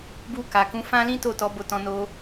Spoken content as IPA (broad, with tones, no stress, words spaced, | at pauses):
bu˧ka˨kũ˨˦ fã˦lĩ˦to˦˨tɔ˨˦ bo˦˨tɔ̃˧no˦